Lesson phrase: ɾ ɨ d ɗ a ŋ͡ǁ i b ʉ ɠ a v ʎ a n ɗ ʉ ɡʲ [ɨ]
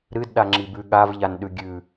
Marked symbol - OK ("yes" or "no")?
no